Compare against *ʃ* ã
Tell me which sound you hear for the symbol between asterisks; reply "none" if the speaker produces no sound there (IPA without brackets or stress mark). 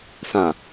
s